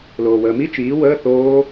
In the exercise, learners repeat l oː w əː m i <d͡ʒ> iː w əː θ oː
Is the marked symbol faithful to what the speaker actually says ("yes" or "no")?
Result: no